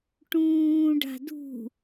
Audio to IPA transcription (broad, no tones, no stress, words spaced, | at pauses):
ʈũːɖa̤ dṳ